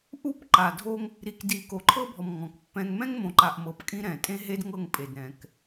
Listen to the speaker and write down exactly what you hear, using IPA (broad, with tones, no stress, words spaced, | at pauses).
ʔu˦˨pǃa˨dʱo˦ŋ | ɾi˨kdi˨ko˨ ǃʰɤ˦bʱɔ˨m ŋɔ̃˨kpːɛ̃˦ŋ mɛ̃˦ŋmõ˨ǃa˨ʔ mɤ˨˦pkʼĩ˦ɾɛ̃˨ tʼẽ˦ɦe˦dŋɤ˦˨ŋ pʼe˨d ɾɛ̃˨k